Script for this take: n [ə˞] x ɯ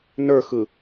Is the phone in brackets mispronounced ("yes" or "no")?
no